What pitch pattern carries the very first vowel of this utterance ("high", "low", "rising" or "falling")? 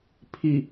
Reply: low